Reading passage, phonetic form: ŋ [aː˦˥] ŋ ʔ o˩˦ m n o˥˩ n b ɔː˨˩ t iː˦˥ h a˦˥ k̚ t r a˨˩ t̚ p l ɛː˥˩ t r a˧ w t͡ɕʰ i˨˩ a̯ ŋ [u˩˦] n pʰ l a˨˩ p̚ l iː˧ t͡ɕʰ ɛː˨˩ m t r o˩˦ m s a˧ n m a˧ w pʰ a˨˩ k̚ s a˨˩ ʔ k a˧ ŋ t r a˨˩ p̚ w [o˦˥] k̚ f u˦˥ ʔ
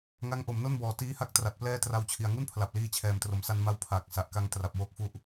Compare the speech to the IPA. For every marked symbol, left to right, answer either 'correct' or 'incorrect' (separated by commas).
incorrect, incorrect, correct